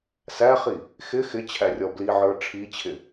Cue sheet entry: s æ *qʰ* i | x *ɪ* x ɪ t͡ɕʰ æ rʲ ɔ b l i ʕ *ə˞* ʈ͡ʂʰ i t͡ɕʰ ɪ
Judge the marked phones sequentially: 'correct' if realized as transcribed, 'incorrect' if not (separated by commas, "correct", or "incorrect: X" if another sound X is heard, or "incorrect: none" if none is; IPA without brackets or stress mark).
incorrect: χ, correct, correct